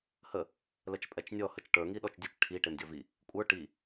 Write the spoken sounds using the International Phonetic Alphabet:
h ə | l ə t͡ʃ pʼ ɛ t͡ʃ nʲ ɔ h ə t͡ʃ ʈ ə˞ ŋ i ɗ ɔ t͡ʃ dʲ ə t͡ʃ ʈʰ i ʈ e m dʲ ɔ v i | kʷʼ ə˞ ʈ i

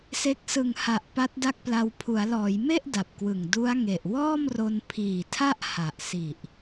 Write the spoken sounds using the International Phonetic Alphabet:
s e˦˥ k̚ s ɯ˨˩ ŋ h a˨˩ ʔ p a˦˥ t̚ d a˥˩ k̚ p l a˧ w pʰ u˩˦ a̯ l ɔː˩˦ j m e˥˩ ʔ d a˨˩ p̚ k w ɯ˨˩ ŋ d u˦˥ a̯ ŋ e˨˩ ʔ w ɔː˥˩ m r o˧ n pʰ iː˨˩ tʰ a˥˩ ʔ h a˨˩ ʔ s i˨˩ ʔ

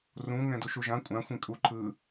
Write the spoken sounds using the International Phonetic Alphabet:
r ũ ŋ ɛ̃ d u ʃ u ʒ ã kʷʼ ã xʷ ĩ kʼ u ǃʰ ɯ

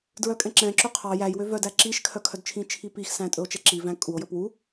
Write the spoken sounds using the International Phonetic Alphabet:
d ɹ œ kʼ ɛ̃ ǁ ɛ̃ ǁ ø qʰ ɑ j æ j w ø v œ d æ ǁ i ʃ kʰ œ kʰ œ d t͡ʃʰ ĩ t͡ʃʰ i p i x s æ̃ tʼ ɵ o̯ t͡ʃ ɛ ǁ i v æ̃ kʼ u o̯ j ɵ p w u

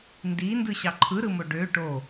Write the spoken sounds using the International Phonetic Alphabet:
n d i n d ɯ ɕ ɑ ǃʰ ɯ ɾ ɯ m o ɖ ø ʈ o

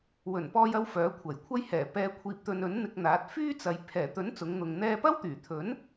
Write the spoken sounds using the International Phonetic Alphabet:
w ɵ˨˩ n p ɔː˧ j ɐ˧ w f œː˨˥ kʷʰ ɐ˨˩ j kʷʰ ɐ˥ j h ɛː˨˩ p ɛː˨ kʷʰ iː˨ p̚ t̪ ɵ˨ n ɵ˨˥ n n̪ ɪ˧ k̚ n̪ aː˨˥ t̚ f yː˥ t͡s ɐ˨ j pʰ ɛː˨˩ t̪ ɵ˨˥ n t͡s ʊ˨˧ ŋ n̪ ʊ˨ ŋ n̪ ɛː˧ p ɐ˥ w t̪ yː˨˩ t̪ʰ ɵ˨˥ n

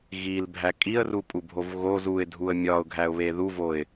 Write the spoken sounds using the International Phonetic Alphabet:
ɣ i l bʱ æ kʼ i ə̯ r u pʼ u bʱ o v ɣ o z u ɪ̯ dʱ u ə̯ mʲ ɒ ʊ̯ ɡʱ æ ʊ̯ β e ð u v o ɪ̯

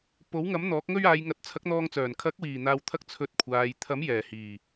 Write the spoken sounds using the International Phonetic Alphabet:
p o˨˥ w ŋ ɐ˨˥ m n̪ ɔː˨˥ k̚ ŋ ɵ˥ ɥ aː˨˧ j ŋ ɐ˨˥ t̚ t͡sʰ ɐ˨˥ k̚ n̪ ɔː˧ ŋ t͡s œː˨˩ n kʰ ɐ˨˥ k̚ w iː˨˩ n̪ aː˨ w t̪ʰ ɐ˧ k̚ t͡sʰ ɵ˧ t̚ kʷʰ aː˨ j t̪ʰ ɐ˨˥ m j ɛː˨˩ h iː˨˩

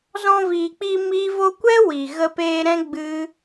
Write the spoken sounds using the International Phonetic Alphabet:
z ɔ̃˧ v iː˨ k͡p i˧ m i˦ v o˧ kʷ ɛ˦ w i˨ ɣ ə˧ p eː˧ ɾ ɛ̃˦ ɡ͡b ɨ˦

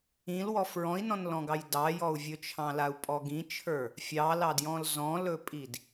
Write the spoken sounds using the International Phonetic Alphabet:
ĩ l w ɔ f ɹ ɔ̃ i̯ n ɔ̃ n l ɔ̃ ɡ ɑ j d ɑ j ɔ u̯ vʲ ɵ t͡ʃʰ ɑ̃ l a u̯ pʼ ɔ ɡ ĩ t͡ʃʰ ə˞ | fʲ ɑ l ɑ d j ɔ̃ l z ɔ̃ l ɵ pʼ i d

